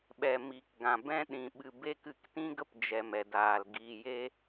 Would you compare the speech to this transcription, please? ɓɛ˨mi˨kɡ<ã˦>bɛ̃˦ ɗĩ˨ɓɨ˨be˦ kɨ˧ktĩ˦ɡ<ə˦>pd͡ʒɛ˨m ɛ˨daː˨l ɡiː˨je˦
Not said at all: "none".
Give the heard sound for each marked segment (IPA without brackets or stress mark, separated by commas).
ã˨, ə˦